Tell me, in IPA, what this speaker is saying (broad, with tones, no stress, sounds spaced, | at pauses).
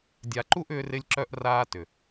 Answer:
dʲ a˨ ǃ u˦ ʔ ʏː˦ r ɪ˦ lʲ ǁ œ˦ ʔ r aː˦ t ʏ˨